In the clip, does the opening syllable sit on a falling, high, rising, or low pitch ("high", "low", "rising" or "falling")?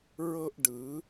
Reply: high